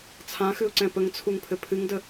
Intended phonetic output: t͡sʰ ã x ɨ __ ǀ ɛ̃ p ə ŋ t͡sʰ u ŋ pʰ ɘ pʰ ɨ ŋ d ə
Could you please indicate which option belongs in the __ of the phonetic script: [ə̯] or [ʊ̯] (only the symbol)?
ʊ̯